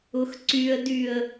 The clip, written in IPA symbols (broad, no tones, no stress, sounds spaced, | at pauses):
ʊ x ǀ y ə̯ d y ə̯